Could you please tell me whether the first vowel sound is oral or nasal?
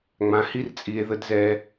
nasal